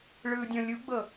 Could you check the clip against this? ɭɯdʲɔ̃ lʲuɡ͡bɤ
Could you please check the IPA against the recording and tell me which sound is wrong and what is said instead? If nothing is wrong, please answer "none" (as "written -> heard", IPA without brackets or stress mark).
none